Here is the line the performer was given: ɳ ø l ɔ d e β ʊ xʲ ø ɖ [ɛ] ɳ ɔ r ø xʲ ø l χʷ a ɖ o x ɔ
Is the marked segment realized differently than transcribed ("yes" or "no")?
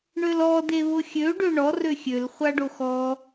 yes